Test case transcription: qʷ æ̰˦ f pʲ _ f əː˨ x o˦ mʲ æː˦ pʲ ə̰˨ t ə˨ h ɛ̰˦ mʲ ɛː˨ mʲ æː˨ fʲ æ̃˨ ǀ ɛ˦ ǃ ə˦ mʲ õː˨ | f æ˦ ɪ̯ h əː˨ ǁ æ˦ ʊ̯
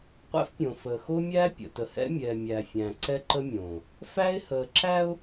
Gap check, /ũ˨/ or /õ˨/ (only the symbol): õ˨